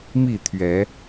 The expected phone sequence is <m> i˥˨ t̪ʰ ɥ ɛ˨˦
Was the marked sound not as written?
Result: no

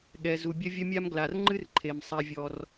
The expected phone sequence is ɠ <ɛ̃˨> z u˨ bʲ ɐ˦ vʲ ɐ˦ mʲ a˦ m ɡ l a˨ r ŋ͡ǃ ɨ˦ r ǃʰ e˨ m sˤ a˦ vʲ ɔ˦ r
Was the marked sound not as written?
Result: yes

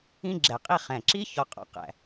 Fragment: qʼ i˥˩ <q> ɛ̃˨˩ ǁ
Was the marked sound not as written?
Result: yes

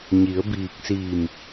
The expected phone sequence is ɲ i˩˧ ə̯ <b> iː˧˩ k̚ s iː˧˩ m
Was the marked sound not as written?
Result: no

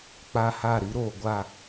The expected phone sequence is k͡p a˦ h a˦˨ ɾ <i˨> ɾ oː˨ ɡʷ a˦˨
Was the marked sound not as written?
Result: yes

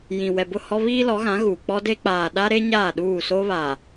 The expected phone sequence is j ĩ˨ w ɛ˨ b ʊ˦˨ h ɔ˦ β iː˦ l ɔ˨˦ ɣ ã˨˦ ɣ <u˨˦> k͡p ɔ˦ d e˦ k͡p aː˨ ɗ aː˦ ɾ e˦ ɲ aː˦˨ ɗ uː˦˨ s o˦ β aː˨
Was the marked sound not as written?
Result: yes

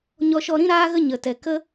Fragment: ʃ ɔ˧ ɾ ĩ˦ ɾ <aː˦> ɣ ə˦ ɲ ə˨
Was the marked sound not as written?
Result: no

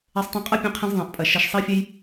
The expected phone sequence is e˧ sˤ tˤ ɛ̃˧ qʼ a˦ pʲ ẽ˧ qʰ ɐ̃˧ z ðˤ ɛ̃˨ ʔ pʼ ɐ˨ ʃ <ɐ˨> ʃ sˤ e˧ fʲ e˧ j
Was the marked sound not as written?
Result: no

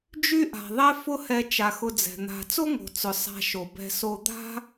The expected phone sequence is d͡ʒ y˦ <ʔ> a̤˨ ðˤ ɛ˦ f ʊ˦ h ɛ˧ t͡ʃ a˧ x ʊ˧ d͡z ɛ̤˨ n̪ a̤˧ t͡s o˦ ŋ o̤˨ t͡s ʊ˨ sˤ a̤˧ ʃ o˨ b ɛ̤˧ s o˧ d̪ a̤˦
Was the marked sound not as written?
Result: no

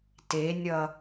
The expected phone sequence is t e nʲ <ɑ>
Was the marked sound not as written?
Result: yes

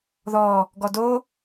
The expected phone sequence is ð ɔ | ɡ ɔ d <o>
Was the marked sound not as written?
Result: no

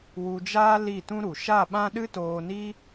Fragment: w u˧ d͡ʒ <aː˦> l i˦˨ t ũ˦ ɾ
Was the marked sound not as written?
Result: no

